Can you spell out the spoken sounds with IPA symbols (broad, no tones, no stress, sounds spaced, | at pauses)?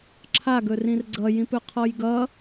ǁʰ a ɡ ɵ r ĩ r ɡ͡ǀ ʌ j ĩ p ɵ qʰ ɔ j ɡ ʌ